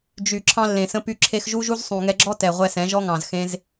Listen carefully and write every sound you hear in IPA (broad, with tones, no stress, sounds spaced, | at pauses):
d͡ʒ y˨ ǁʰ ɑ̃˧ lː ẽ˨ s ə̃˧ p y˧ ǁʰ e˧ x ʒ u˦ ʒ u˦ z sˤ ũ˨ ŋ ɛ˧ ɡ͡ǁ ɔ˦ t ɛ˨ ʁʷ ɛ˧ s ɛ̃˨˦ ʒ ɔ˦ ŋ ɑ̃˨ z x ẽ˧ z